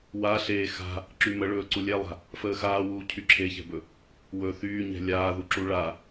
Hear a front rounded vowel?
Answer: yes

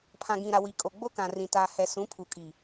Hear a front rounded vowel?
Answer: no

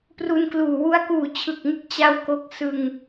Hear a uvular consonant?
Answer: no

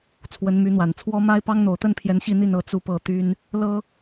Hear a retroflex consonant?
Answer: no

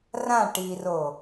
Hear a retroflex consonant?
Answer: yes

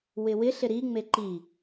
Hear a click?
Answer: yes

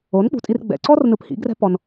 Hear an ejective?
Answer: yes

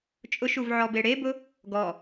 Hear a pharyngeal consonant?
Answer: yes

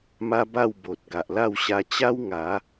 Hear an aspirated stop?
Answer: no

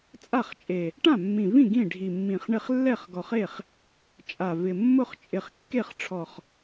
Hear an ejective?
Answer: yes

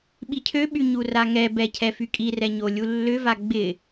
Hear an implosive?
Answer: yes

